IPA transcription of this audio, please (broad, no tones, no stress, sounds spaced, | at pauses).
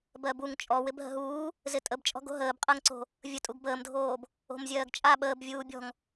b ɜ b u ŋ t͡ʃʼ ɔ w ɪ b ɦ ə̤ ɦ uː | z ɪ tʼ ə b t͡ʃʼ ɔ̤ ɡ o̤ ɦ əː b qʼ ɜ ŋ ǀ o̤ | vʲ ə tʼ u ɡ b əː m dʱ oː b | o̤ m zʲ ɜː ɡ t͡ʃʼ a ɓ əː b vʲ uː bʲ ɔ̤ ŋ